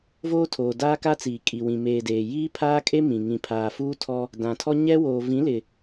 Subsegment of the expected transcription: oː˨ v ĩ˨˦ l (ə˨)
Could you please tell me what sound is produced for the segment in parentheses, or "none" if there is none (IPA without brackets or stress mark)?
ɪ˨